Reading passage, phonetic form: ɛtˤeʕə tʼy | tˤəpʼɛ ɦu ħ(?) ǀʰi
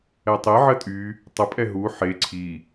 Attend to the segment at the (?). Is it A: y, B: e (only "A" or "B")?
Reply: B